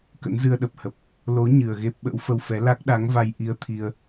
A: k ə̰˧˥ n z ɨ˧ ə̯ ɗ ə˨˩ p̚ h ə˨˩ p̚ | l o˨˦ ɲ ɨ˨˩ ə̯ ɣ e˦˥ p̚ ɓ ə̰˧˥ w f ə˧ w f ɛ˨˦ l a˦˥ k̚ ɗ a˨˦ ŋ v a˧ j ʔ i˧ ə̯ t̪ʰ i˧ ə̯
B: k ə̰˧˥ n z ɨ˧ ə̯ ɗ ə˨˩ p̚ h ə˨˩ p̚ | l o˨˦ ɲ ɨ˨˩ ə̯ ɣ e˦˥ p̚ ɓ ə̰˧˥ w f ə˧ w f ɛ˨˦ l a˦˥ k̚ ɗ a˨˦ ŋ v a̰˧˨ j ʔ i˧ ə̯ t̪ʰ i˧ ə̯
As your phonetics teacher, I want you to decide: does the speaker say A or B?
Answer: A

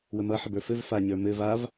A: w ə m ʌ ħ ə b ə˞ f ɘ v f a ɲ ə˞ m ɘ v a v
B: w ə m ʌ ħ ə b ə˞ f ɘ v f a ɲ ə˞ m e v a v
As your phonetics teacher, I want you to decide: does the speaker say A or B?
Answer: A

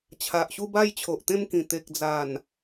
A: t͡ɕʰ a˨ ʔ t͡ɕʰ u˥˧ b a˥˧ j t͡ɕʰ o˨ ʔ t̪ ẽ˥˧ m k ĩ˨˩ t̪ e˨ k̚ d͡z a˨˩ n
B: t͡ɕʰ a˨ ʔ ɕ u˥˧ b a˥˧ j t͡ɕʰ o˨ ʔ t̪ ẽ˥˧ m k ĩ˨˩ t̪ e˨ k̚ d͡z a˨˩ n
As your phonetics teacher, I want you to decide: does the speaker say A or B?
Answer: B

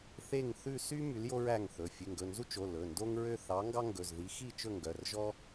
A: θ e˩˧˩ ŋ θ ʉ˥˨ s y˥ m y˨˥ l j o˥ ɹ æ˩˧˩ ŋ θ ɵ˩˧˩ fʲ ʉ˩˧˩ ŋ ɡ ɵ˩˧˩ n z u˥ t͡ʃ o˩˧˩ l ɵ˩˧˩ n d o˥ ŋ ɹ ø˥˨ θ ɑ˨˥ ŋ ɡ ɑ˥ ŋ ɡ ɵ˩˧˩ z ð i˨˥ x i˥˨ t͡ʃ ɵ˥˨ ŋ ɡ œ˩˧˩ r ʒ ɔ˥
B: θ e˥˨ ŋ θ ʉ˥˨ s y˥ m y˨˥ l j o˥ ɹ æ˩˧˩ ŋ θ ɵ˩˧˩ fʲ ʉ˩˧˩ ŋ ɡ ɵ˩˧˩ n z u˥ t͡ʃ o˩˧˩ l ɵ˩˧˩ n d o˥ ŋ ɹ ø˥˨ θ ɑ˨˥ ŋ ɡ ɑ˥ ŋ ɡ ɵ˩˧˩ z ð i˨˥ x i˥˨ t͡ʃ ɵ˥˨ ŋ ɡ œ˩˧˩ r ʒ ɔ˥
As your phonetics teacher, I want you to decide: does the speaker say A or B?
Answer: B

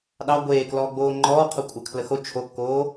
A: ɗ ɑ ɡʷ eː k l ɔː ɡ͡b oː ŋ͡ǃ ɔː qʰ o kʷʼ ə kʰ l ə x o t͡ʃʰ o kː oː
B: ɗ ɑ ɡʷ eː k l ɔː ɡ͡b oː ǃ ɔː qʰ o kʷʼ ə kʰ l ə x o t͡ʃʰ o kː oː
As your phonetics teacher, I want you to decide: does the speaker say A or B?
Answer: A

